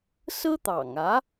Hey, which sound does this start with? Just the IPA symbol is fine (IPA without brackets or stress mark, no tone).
s